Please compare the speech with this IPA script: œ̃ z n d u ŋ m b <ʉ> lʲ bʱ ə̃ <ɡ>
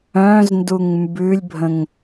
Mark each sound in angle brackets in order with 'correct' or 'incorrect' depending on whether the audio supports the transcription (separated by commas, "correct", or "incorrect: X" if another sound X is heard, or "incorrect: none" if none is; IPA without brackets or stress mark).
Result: correct, incorrect: ŋ